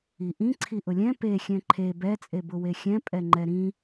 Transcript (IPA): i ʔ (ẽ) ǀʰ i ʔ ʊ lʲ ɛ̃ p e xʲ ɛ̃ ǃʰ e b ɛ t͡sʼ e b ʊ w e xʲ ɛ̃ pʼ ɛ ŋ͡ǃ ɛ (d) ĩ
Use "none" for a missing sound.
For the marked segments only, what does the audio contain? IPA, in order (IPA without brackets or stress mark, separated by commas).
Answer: ĩ, ɾ